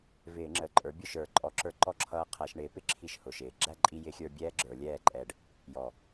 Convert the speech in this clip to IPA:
vɪː˧˩˧ŋ͡ǁə˨˩ǃʼə˞˩˥ bʲʊ˥˩ʃə˞˧˩˧ǃʼɔ˧˩˧ǁə˞˧ ǃɔ˥˩ǁʰʌː˧ qʰæ˧˩˧ʃɳɪː˩˥pɪ˥˩ ǁʰi˥˩ʃhʊ˨˩ʃɪː˨˩ ɡ͡ǁæ˥˩ǃʼi˧jɪ˧˩˧xʲə˞˧ bʲɛː˥ɡ͡ǁə˞˧˩˧lʲɛː˥˩ǃʼɛ˧ɖ | jɔ˨˩

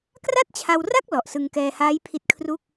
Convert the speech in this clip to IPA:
kra˥˩t̚t͡ɕʰa˧wra˥˩k̚ lɔ˨˩ʔsɯ˧ŋkɛː˧haː˦˥j pʰi˦˥t̚kʰru˥˩k̚

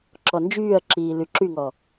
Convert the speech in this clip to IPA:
ǁɔnd͡ʒyːɐ̯ǁiː lyǁyŋɔ

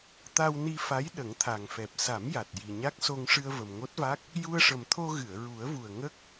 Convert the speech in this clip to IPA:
t̪a˧wni˧fa˧˥j ɗə˨˩˦ŋt̪ʰa˨˩ŋfɛ˨˩p̚ sa˨˩˦m ja˨˩t̚ ji˨˩ɲa˦˥k̚so˧ŋ ʂɨ˧ə̯və˨˩mŋo˦˥t̚va˦˥k̚ | ju˧ə̯ʂə˨˩mt̪ʰo˧ ɣɨ˨˩˨ə̯ɹu˨˩˦ə̯vu˨˩ə̯ ŋə˦˥k̚

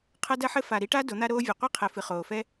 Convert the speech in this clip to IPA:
qʰɐ˦dɐ˦ħɘ˦ fa˨ɾi˦ʈa˦ do˨˦n̪a˦ɾoː˦vʲɛ˨ qʷi˦qʰɛ˨ fɨ˨χoː˨fɛ˦

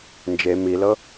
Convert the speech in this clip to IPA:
nd͡ʒe milɤ

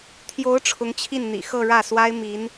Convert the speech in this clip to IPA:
t̪ʰjo˧˥ʊ̯ ʈ͡ʂʰʊ˧˥ŋt͡ɕʰi˥˩nn̪ḭ˨˩ xɤ˥˧ɻä˥˩swa˥ɪ̯ mi˧˥n

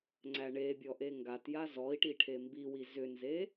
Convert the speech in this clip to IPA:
ŋ͡ǀæɳebʲɔ ʔeŋɡatja zɔi̯ʈi ʈʰembiwi zʏnze

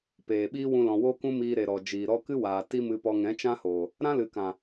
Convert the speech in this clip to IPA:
peː˨ɓiː˦wũ˧lɔ̃˨ wo˦kũ˦miː˧ɾe˨ ɾɔ˨d͡ʒiː˨ɾɔ˦ kɨ˦waː˨ ti˦mɨ˧pɔ˧ ŋɛ̃˨˦t͡ʃã˦hoː˨ | ɾã˦lɨ˨kã˨

